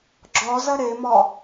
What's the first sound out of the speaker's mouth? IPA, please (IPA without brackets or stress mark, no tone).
ɡ͡ǁ